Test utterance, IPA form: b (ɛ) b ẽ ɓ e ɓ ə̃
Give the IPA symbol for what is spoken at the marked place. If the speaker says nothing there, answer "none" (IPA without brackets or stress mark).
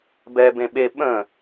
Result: ɛ